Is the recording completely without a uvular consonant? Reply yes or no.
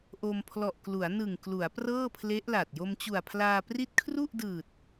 yes